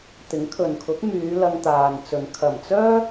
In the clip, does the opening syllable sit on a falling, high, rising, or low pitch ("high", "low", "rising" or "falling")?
rising